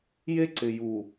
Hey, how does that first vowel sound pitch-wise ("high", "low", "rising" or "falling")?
high